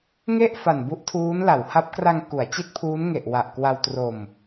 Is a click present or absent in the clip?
absent